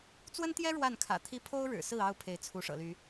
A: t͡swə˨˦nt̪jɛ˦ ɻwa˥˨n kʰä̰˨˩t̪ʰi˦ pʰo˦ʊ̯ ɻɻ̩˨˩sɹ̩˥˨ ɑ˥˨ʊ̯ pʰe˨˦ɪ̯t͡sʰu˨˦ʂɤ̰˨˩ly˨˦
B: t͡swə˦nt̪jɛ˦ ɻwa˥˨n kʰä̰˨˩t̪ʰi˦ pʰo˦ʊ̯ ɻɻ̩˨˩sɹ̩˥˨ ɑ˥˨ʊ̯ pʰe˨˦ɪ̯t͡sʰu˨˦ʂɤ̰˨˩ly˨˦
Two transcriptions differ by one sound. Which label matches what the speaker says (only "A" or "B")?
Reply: B